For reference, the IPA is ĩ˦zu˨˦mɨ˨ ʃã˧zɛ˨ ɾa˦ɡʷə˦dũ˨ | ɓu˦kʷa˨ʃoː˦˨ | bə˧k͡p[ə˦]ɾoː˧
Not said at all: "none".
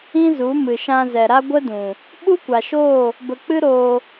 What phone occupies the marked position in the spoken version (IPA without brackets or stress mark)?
ɨ˦